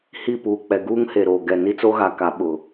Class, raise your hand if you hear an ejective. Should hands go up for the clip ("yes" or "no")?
no